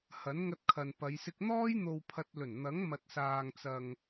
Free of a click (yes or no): yes